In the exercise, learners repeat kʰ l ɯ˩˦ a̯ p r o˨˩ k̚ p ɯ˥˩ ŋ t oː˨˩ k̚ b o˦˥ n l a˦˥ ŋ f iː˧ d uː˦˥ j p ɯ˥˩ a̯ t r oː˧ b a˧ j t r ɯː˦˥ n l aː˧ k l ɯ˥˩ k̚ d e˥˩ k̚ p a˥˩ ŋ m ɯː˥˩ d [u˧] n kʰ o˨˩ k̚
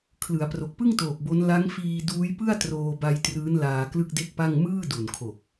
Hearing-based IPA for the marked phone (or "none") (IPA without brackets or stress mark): u˨˩